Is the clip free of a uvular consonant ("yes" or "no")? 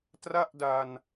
yes